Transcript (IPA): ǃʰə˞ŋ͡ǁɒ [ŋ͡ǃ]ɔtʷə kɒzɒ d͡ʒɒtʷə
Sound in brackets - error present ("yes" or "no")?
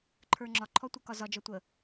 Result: yes